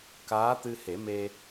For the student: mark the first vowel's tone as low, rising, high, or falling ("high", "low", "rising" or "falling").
rising